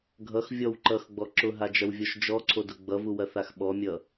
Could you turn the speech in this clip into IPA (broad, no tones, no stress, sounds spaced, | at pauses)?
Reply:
ɡʱ ʌ x vʲ ɔ w ǃ ʌ x ɡ͡b ɔ ǁ ʊ ɦ a d͡ʒ ɐ w vʲ ɔ ʃ d͡ʒ ɔ ǀʰ o d ʊ ɡ͡b ʌ v u w ɐ θ a x ɓ ɔ mʲ ʌ